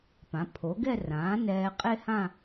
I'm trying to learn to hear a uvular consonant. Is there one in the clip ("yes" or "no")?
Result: yes